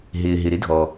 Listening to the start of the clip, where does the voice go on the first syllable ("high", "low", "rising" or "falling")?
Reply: low